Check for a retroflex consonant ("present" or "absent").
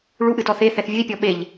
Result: present